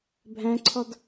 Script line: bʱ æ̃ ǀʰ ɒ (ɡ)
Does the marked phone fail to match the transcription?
yes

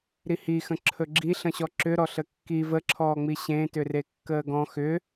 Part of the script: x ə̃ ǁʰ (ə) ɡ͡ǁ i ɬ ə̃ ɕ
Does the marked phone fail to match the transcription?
yes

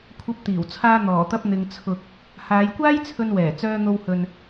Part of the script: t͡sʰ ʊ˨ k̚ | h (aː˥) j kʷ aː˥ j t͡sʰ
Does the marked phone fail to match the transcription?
yes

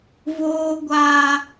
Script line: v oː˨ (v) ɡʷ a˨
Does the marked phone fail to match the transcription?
yes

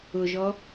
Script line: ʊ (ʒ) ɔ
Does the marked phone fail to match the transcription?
no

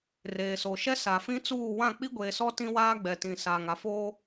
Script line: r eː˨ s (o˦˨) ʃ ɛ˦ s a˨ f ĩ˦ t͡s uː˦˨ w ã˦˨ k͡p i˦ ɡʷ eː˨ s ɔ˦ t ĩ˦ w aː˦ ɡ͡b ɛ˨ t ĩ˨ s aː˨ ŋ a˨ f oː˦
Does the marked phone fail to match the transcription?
yes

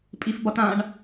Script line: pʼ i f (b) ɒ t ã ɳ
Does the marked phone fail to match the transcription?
no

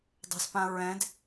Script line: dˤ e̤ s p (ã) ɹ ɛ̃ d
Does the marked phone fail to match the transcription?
no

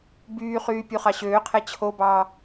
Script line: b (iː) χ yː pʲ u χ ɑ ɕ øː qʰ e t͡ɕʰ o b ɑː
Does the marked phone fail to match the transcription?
yes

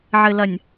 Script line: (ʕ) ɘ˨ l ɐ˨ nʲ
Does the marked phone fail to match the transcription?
no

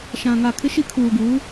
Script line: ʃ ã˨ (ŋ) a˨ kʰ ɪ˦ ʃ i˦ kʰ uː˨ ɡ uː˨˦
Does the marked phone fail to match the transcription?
no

